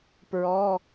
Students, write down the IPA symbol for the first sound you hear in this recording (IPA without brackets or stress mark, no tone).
p